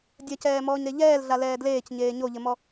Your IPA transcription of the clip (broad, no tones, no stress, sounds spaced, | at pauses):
dʲ ɐ c ɛː m ɔː ɲ ɾ e ʎ ɛː l ɮ a l ɛː d l eː c ɲ eː ɲ o ʎ ɘ m ɔ